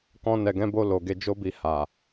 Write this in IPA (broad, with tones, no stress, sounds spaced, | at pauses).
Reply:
k ɔ̃˧ n ɛ˨ ɡ ɛ̃˨˦ b o˧ l o˨ ɡ e˨˦ d͡ʒ o˦ b i˧ h a˨